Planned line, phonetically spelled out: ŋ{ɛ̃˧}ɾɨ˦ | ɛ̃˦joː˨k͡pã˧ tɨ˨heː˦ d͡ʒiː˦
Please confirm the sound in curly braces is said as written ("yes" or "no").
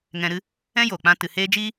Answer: yes